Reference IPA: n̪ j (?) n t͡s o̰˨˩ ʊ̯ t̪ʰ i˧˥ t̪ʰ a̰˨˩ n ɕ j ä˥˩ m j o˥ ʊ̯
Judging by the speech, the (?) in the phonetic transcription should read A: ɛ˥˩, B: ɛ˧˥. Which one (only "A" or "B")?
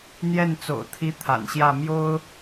A